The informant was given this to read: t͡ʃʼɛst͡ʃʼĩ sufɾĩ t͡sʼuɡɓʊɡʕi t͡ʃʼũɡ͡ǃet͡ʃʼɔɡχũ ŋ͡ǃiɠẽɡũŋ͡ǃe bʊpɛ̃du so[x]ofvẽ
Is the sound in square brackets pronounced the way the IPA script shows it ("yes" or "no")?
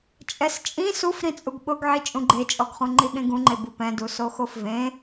yes